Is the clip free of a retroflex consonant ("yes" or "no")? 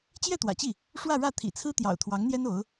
no